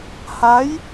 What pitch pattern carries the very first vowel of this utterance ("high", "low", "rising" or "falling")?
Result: rising